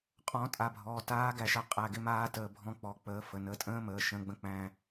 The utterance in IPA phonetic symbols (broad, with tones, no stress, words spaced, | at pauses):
qʼɔ̃˨˥tʼa˩˧˩bʱɔː˩˧˩ taː˦˥ɡæ˧ʃa˧ qʼæ˩˧˩ɡɪ˧maː˧ təː˧bʱɔ̃˦˥k͡pɔ˩˧˩ k͡pəː˨˥fə˩˧˩ nəː˨˥tʼə̃ː˦˥məː˩˧˩ ʃə̃ː˨˥ɡ͡bə̃˧k͡pæ̃˧